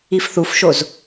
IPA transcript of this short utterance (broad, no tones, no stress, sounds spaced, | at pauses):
i f θ u f ʃ o z